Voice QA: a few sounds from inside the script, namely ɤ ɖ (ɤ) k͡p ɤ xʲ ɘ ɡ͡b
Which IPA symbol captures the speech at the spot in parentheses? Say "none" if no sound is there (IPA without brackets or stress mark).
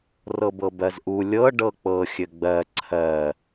ɤ